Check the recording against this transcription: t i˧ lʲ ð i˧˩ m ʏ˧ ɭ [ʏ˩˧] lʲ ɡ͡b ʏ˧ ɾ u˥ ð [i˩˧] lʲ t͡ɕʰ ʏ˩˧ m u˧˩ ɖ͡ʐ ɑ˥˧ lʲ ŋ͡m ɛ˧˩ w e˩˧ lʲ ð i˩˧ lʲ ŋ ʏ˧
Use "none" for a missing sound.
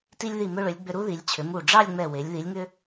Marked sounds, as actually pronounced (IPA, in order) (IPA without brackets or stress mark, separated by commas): ʏ˩˧, i˩˧